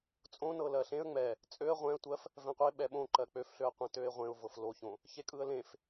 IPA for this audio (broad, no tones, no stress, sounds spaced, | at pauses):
t͡sʼ õ n ɤ l ɜ ɬ ẽ ə̯ ŋ͡m ɛ | t͡sʼ ø ə̯ ʁʷ ɛ̃ ə̯ tʷ ɜ f | v ɛ̃ qʷ e ɓ ɛ ɓ õ ǃ ɜ k͡p ø f ɬ ø ə̯ qʷ ẽ t ø ɪ̯ ʁʷ ẽ ʊ̯ v ɤ f l o ç õ | ç e kʼ ɯ ə̯ l ẽ f